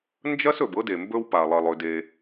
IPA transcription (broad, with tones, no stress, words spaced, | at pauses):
nd͡ʒɐ˥sɵ˩b ɤ˥de˩mbɵ˦wpa˩ lˠɐ˩lˠɵ˩de˩